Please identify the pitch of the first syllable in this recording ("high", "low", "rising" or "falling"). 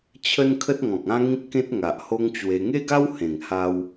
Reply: high